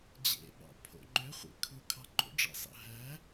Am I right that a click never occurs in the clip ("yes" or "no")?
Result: no